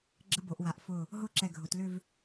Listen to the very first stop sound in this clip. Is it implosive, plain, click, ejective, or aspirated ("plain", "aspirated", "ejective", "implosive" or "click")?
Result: click